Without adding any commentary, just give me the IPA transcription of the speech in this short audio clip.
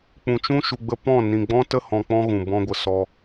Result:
k͡pũ˨t͡ʃũ˦ ʃu˧ɡ͡bə˦ pɔ̃˦˨ nĩ˨ɡ͡bɔ̃˦tə˦ hɔ̃˧k͡pɔ̃˦ɣũ˨ bɔ̃˧ɡʷə˨sɔ˧

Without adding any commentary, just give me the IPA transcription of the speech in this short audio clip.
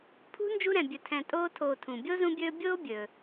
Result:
pʰṳ˥ nd͡ʒu˦ɾɛ̃˨ bʲɵ˨tʰɛ̃˨ tʼoː˦ tʰoː˨tʰũ˩ bʲo˥zũ˦bʲɵː˦ bʲoː˥ bʲɵː˩

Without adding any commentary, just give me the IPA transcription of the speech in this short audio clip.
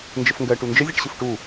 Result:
nd͡ʒəfŋɡɜ ʈund͡ʒə zʲɛʈɕɯfʈu

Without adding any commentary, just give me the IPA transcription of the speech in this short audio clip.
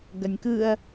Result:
ɡɐnʲkɯɐ̯

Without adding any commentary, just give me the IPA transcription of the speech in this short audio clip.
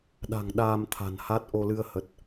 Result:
ɗa̤˨˩ŋ ɗaː˧m t̪ʰa̤˨˩nha˦˥t̚ ʔo˧lɨ˧ə̯hə˨˩t̚

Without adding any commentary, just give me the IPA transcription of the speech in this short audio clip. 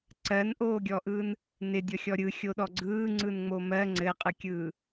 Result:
ǀɜnʔoːɡʲɔʔɯːn | nɪdʲɔxʲɔ ɾʲɯxʲoɗɔ ɡ͡ǀɯːŋ͡ǀɯnŋ͡mo mɜ ŋ͡ǀɘqʼɯkʲɯː

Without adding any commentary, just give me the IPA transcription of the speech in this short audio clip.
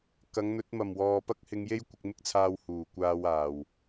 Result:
kɐ˨˧ŋn̪ɵ˨˥t̚ mɐ˨˩m wɔː˨pɐ˥k̚hɪ˧ŋje˥j kʷɪ˧k̚mɪ˥k̚t͡sʰaː˧w huː˨˩kʷaː˧waː˨˩w

